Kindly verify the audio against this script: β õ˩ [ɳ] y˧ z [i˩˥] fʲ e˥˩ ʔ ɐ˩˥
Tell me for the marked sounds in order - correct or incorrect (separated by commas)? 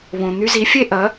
incorrect, correct